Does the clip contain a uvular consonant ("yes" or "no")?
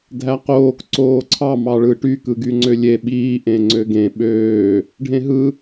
yes